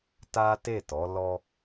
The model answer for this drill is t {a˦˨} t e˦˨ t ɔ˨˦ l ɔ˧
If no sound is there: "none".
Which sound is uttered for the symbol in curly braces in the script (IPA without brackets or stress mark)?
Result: a˦